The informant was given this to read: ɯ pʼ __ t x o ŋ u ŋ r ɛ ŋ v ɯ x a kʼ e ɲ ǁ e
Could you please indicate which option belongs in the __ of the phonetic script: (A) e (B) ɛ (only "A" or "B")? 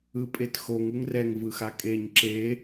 A